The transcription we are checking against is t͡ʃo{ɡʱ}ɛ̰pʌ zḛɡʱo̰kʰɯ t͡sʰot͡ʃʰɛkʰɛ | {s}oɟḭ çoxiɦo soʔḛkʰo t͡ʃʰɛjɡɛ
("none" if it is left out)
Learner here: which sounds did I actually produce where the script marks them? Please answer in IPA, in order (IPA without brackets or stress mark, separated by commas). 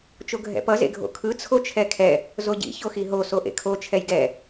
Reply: ɡʱ, z